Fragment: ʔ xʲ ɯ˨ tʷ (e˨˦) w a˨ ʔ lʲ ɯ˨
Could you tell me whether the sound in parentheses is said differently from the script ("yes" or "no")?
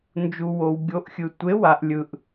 no